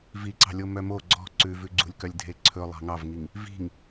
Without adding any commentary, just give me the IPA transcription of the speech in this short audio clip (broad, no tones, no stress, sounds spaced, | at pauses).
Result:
v i ǀ ɑ̤ lʲ o m œ m o ɡ͡ǀ ɔ̤ ǀ ʉ v ʉ ɡ͡ǀ ṳ lʲ k œ lʲ dʱ e ǀʰ ɵ lˠ ɑ̤ ŋ ɑ v ŋ i ŋ | v i̤ ŋ